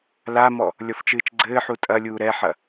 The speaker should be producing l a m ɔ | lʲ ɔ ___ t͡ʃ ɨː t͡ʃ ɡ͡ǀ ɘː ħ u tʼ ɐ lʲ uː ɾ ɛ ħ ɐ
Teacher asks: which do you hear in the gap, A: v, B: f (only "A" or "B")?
B